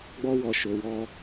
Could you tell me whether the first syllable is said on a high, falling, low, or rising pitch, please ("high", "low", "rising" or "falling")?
high